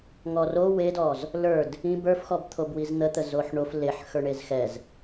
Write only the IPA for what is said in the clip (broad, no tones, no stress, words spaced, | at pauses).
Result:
ŋɔro wedɔz | lə˞d | ĩb ə˞fxɔbt̪ʰob wizn̪ət̪ə zoħɳof leħ xə˞ɳezxɛz